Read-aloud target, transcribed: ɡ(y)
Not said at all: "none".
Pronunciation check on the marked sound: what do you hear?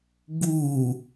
u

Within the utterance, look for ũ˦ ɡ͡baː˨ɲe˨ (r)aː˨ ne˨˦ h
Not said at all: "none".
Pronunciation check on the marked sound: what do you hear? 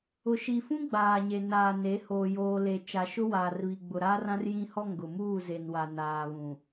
n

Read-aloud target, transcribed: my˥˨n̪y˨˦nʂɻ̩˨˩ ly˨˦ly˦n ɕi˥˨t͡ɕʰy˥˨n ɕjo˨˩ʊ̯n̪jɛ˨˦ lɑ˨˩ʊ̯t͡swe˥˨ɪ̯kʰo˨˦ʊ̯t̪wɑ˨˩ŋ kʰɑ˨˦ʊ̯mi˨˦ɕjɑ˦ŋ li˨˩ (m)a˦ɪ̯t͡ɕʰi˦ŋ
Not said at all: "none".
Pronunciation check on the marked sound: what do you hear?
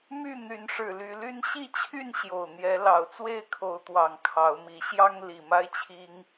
m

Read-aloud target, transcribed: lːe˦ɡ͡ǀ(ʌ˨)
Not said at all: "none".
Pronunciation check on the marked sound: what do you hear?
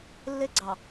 ɑ˨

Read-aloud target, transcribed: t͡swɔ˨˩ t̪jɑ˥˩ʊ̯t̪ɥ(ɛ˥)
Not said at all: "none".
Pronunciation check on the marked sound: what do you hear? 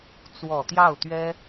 ɛ˥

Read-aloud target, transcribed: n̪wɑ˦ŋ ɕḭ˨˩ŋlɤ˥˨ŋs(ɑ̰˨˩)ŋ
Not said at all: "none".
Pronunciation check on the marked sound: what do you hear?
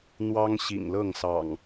ɑ̰˨˩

